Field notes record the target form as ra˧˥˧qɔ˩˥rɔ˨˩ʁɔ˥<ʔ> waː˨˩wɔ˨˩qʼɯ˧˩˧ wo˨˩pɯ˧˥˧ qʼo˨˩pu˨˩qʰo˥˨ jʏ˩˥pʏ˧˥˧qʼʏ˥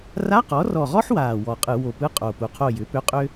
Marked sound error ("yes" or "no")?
yes